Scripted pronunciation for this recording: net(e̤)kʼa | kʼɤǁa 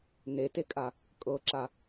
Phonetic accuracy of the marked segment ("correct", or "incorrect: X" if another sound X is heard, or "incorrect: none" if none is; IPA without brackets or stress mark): incorrect: e